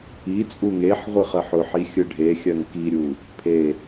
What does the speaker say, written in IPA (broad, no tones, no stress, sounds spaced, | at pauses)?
i t͡sʼ u ŋ e ħ ʁʷ ɯ χ ɜ ħ ʊ ħ i xʲ ɯ ɖʱ e xʲ ɜ ŋ k i ɾʲ u | pʰ e